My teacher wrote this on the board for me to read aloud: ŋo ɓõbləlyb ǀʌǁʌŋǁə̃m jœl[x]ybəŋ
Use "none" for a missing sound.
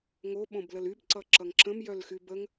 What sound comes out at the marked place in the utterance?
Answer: x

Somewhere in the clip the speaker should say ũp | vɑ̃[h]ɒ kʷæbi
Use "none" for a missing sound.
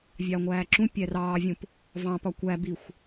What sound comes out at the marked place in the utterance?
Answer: p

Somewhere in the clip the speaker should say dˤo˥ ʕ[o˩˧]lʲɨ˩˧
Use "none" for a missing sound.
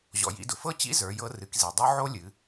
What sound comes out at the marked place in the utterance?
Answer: o˥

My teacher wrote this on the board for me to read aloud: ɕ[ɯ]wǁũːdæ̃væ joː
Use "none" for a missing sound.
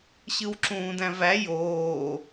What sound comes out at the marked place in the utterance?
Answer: ɯ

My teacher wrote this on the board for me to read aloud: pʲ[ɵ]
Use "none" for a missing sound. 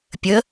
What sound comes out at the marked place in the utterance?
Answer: ə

